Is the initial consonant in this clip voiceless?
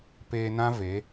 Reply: yes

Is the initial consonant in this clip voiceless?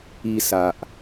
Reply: yes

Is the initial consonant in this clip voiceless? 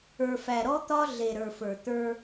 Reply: yes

